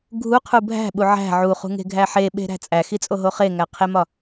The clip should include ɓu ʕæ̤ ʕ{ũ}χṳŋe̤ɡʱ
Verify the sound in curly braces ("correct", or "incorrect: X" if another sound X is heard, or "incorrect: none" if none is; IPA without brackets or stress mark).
incorrect: u